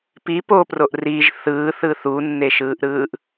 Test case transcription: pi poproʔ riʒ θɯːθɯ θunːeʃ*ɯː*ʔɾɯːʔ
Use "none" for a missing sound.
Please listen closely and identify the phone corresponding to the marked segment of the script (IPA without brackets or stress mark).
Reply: ɯː